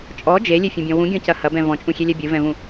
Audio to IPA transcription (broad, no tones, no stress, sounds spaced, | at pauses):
t͡ʃʼ ɔ d͡ʒ e lʲ e fʲ ũ bʲ ɔ̃ w ũ ɡʲ ɔ̃ c ɐ h ɐ b ɛ̃ v ɔ̃ t͡ʃʼ ũ xʲ e lʲ ɛ bʲ ɨ v ɛ̃ v ũ